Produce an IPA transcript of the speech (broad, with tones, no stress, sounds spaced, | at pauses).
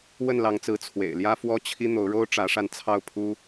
w ə˥˨ n l ɑ˨˦ ŋ t͡s ɹ̩˨˦ t͡sʰ w ḛ˨˩ ɪ̯ l j ä˦ f w ɔ˦ t͡ɕʰ i˦ n̪ o˨˦ ʊ̯ ɻ o˦ ʊ̯ ʈ͡ʂ ä˨˦ ʂ a˧ n t͡sʰ ɑ˥˨ ʊ̯ pʰ u˦